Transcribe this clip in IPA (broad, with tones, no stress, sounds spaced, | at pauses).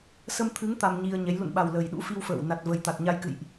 s ə˧ m t̪ʰ ɨ˨˦ ŋ t̪ a˧ m ɲ i˧ ə̯ ɲ ɛ˨˦ j l ṵ˧˨ n ɓ a˨˩ w l ə˨˩ j ɗ ṵ˧˥ f i˧ w f ə̰ː˧˨ w n a˨˩ t̚ v ə˨˩ j t̪ a˨˩ t̚ ɲ a˧ j k ɨ̰˧˨ j ʔ